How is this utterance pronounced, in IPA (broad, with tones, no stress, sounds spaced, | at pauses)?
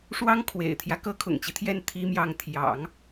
ʂ w ɑ˥ ŋ kʰ w ḛ˨˩ ɪ̯ t̪ʰ j ä˦ k ɤ˥ kʰ ʊ̰˨˩ ŋ t͡ɕ i˦ t̪ʰ j ɛ˥˩ n t̪ʰ i˥ m j ɑ˥˩ ŋ t̪ʰ j ɑ̰˨˩˦ ŋ